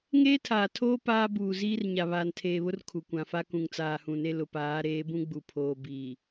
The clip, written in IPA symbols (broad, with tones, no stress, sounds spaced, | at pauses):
ŋ eː˦ tʰ aː˨ tʰ oː˦ p aː˦ b uː˨ z iː˦ r ɲ a˨ β aː˨ n tʰ eː˨ β ʊ˦ r kʰ u˨ kʷ ã˨ f a˦ k ũ˨ ŋ t͡s aː˨ h ũ˨ n e˦ l ʊ˨ p aː˨˦ ɾ eː˨˦ b ũ˦ ɡ͡b u˨ pʰ oː˨ b iː˨